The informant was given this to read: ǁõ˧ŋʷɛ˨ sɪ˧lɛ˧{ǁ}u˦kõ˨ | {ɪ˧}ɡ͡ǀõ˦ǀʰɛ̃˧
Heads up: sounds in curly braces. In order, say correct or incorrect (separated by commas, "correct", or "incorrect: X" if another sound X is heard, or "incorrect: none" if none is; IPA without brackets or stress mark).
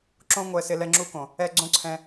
incorrect: ŋ͡ǁ, incorrect: ɛ˧